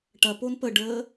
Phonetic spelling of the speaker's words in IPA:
ʈɐpon pəɖəː

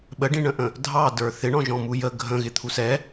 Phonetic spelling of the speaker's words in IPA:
ɓəɖĩɳə̃ʔə̃ | dʱɑdə˞ θɪɳɔ̃ʒɔ̃ mujə ɡʱə̃ɣɪ t̪ʰusɛ

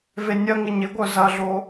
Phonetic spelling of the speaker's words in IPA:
venʲɐŋɪ ɲɪɡʷœ zɐɮo

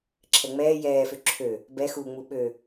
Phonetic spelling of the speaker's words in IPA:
ǁʰɛŋ͡mɛː jɛːfø ǁʰø | bɛxuːŋ͡mu ɓø

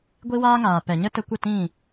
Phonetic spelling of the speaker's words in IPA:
ɡʷi˦waː˦ŋaː˨ pɛ˨ɲə˦tə˧kʷə˦˨ tĩ˦˨

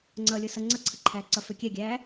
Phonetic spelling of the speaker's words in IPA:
ŋ͡ǀʌːlʲɤsʌ ŋ͡ǀʌǀʰəǃʰæːǀʌ føkʲɛɡʲæː

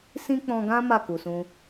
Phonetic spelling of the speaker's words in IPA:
sĩ˦k͡pɔ̃˧ɡã˦ ma˦˨ ku˨sũ˧

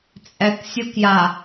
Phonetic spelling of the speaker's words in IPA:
t͡sʼɛk sʲokja

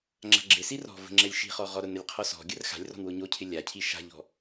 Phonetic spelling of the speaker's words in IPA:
ŋ͡ǁa̤ɡ͡ǁɪsi rɔ̤ və̤ŋ͡ǁɛlʲʃi̤χɔ ʁɔɾʊnəlʲ qʰɔsɔ̤ɡʲər xa̤lʲrɔ̤n wʊɲocʰɪ lʲa cʰiʃa̤ʎɔ̤

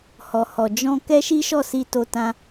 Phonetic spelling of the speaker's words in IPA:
hɔ˨hɔ˨ d͡ʒɔ̃˧ kɛ˦ʃi˦ʃɔ˦˨si˧ to˧tã˦

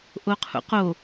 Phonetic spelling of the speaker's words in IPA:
ʔoqʰṵqo

